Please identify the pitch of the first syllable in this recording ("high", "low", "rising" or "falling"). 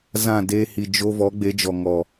falling